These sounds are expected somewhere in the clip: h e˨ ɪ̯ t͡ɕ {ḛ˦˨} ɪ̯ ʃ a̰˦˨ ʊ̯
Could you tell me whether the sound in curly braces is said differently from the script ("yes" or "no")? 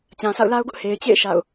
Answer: no